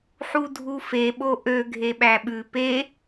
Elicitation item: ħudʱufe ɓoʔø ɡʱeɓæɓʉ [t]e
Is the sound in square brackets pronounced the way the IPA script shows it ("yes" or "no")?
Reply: no